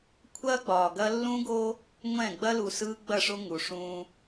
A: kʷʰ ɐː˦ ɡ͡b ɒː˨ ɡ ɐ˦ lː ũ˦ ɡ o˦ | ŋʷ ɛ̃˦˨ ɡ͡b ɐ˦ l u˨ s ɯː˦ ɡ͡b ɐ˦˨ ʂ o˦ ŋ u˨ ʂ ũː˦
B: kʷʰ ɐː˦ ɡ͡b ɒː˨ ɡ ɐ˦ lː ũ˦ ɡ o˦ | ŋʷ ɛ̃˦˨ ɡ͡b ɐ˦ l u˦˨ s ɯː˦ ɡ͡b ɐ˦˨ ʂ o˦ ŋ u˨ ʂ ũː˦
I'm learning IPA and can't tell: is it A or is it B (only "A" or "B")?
A